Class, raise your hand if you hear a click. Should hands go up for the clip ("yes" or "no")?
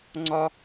yes